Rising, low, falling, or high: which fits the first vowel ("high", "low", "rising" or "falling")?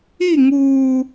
falling